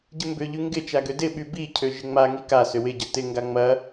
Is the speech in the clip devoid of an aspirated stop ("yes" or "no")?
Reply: no